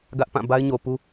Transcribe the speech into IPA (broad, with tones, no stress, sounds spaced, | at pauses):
ɡ ä˦ ʔ p ã˦˨ b a˦ ɪ̯ ɲ o˨ p u˦